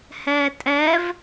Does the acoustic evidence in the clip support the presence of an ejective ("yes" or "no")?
yes